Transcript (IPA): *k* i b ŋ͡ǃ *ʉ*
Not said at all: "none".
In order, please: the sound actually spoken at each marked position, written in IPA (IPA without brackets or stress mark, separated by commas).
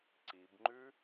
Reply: ǀ, ʉ